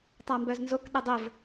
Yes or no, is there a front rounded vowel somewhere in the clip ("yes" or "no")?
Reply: yes